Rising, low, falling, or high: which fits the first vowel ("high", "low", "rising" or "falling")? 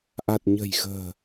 low